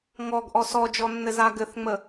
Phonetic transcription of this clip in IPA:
ŋ ɔ ɡ ʔ ɔ s ɔ d͡ʒ ɔ nː ɘ z a ɡ ɘ θ ŋ͡m ə

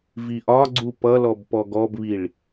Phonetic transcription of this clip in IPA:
v i ʔ ɒ ɡ͡ǀ u p ʌ l ɔ b p ɔ ɡ ɔ b β i ɭ

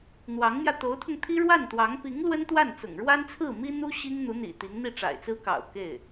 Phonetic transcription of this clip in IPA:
n̪ w ɑ˧˥ ŋ m j ä˧ t̪ o˧˥ ʊ̯ t̪ʰ ʊ˧ ŋ t̪ʰ i˥ ɻ w a˥˩ n t̪ w ɑ˧˥ ŋ p i˧˥ ŋ l w ə˥ n t̪ w a˥˩ n t͡s ʊ̰˨˩ ŋ ɻ w a˥ n t͡sʰ ɹ̩˥˩ m i˥ n̪ u˥ ɕ i˥ ŋ n̪ u˧˥ n̪ ḭ˨˩ t̪ i˧˥ ŋ n̪ i˥˩ ʈ͡ʂ a̰˨˩ ɪ̯ t͡s ɹ̩˥ k ɑ̰˨˩ ʊ̯ k e˥˩ ɪ̯

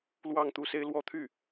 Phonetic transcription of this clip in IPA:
l w ɑ˥˧ ŋ t̪ u˥˩ s e˥ ɪ̯ l w ɔ˥ t̪ʰ y˥˩

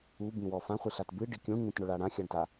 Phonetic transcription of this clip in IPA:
u b ĩ w ɔ f ã χʷ i ɬ a t b ɨ ɖ i kʲ ũ ɳ ɲ ĩ t ɳ ʊ ɭ a ɽ ã xʲ a ɳ t a

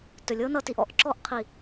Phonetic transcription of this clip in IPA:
t ɵ˨ lʲ ɤ˦ n ʌ˧ t i˧ ʔ ɔ̰˦˨ ʔ ǁ ɔ˧ ʔ qʰ i˨

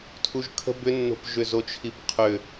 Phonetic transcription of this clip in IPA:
tʰ u ʒ kʰ ə̤ b ʏ nː o̤ p ʒ ʏ z o t͡ʃʰ i p qʰ ʏ

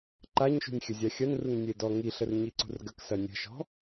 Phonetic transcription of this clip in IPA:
ǃ a ɲ ʃ ṳ nʲ xʲ ə zʲ a xʲ ɐ n r u ŋ nʲ e d ɔ ŋ i ɬ ə r ɲ i ǀ ṳ r ɡ ə k s ɐ nʲ ə̤ ʃ ɔ̤

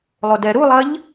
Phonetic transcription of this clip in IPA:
lˠ o d ɛ ɾ u lˠ ɐ ʎ

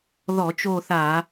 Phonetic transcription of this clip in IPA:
ð ɔ˧˩˧ t͡ʃ o˦˨ θ a˧˩˧

